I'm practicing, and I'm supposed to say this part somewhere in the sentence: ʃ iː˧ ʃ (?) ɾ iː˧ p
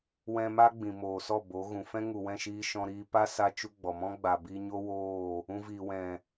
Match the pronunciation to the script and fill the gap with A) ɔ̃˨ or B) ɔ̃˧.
B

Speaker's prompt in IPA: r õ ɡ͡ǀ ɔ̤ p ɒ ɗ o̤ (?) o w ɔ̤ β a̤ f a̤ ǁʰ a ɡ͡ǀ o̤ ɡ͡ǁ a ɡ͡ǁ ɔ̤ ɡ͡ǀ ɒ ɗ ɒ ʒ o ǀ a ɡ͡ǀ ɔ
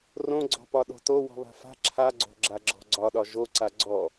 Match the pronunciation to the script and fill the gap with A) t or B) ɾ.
A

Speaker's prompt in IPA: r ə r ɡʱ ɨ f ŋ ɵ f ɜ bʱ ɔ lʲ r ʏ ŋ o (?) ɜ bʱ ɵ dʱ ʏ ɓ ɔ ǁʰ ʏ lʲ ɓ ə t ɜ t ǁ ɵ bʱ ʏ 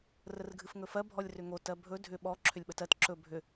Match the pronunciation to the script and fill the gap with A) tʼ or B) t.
B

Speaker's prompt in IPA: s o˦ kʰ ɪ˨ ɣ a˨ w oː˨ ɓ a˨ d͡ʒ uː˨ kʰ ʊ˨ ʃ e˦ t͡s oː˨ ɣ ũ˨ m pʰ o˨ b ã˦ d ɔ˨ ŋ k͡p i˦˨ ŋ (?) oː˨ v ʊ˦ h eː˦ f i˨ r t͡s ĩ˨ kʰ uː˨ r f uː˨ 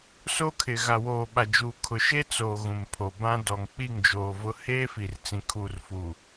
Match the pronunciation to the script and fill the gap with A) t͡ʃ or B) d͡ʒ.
B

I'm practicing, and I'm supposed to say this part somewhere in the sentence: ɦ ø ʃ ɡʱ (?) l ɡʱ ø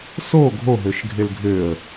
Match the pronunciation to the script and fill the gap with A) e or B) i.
A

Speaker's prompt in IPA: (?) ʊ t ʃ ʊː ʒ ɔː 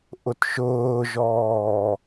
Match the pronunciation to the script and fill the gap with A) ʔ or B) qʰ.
A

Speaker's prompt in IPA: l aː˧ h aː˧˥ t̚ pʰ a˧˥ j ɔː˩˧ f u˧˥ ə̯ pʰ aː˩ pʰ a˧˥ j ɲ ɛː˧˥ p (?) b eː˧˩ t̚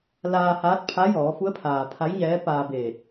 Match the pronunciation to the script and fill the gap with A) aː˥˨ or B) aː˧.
B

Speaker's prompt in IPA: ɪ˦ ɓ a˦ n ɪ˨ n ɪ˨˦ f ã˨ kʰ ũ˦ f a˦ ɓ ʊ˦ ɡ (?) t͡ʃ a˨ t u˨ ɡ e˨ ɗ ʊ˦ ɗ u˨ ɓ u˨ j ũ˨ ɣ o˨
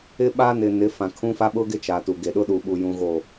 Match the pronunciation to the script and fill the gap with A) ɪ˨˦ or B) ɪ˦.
B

